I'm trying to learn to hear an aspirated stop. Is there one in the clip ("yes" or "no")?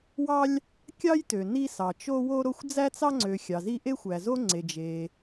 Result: no